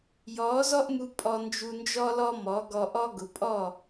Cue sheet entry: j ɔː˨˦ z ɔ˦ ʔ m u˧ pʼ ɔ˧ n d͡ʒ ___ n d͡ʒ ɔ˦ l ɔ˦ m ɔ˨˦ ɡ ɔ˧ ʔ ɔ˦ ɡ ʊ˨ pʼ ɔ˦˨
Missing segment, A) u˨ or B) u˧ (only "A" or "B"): B